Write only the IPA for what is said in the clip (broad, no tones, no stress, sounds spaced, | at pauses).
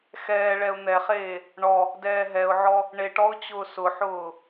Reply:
x ɛː ɭ ɛ ʊ̯ n̪ ɛ χ eː | ɳ ɔ | d ɛː ɦ ɛ ʊ̯ ʕ ɔ | ɳ e ʈ ɔ ʊ̯ t͡ɕ ʊː s ʊ ħ ʊː